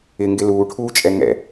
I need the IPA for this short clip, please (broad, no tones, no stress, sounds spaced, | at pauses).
ɪ ŋ ɡ ɪ l uː ʈʰ uː t͡ʃʼ ɛ ŋ ɛ̰